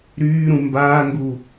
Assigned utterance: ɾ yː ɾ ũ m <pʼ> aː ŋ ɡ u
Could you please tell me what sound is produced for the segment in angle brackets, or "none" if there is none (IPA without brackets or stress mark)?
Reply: b